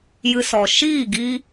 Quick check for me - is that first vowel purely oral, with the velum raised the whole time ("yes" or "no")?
yes